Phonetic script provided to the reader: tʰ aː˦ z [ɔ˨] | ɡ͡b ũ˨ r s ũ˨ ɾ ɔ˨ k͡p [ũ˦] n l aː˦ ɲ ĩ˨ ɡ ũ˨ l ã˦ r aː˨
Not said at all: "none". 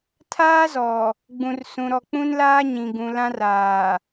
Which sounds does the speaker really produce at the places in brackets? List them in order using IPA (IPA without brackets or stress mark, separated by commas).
ɔ˨, ũ˦